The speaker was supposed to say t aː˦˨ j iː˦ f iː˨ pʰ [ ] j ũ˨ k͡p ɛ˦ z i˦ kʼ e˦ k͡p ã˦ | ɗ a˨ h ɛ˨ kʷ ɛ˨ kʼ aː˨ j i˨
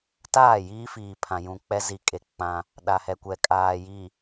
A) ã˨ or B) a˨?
A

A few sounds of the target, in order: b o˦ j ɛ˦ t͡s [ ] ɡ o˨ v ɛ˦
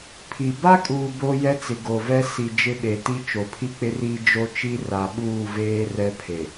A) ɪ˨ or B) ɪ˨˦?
A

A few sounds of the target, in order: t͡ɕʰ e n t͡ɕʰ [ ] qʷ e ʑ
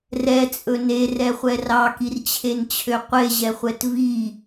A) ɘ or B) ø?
B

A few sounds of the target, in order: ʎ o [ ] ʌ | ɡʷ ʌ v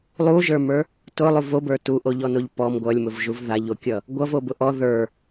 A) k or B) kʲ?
B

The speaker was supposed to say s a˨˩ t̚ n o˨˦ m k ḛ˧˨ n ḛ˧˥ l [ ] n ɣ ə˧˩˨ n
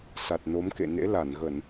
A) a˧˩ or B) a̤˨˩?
A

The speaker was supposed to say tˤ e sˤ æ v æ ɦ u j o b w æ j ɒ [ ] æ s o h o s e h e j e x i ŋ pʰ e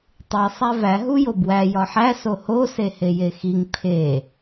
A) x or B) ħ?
B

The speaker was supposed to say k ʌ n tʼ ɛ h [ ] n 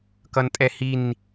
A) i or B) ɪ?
A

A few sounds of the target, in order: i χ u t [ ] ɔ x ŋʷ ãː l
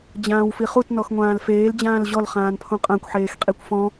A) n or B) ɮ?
A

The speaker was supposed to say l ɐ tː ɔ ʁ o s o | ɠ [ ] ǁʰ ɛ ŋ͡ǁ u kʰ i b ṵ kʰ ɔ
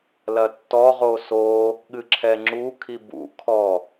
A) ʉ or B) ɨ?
B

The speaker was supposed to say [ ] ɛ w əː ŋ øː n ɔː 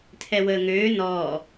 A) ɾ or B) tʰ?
B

